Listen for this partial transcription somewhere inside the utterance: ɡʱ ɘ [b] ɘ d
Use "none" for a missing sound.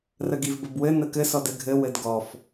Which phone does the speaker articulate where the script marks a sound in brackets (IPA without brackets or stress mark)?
w